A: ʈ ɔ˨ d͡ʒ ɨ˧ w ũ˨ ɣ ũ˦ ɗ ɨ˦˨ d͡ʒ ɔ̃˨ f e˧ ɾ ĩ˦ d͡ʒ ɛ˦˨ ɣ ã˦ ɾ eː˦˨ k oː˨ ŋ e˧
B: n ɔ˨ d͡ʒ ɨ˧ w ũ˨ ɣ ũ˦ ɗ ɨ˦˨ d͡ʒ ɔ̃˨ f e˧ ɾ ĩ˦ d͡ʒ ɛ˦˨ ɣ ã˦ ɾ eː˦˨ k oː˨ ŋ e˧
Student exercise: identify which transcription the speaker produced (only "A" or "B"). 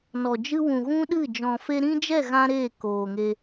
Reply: B